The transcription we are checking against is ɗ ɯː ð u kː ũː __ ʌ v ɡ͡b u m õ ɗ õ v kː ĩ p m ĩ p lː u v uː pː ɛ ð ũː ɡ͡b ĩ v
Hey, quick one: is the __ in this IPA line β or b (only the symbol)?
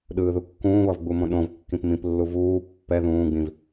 β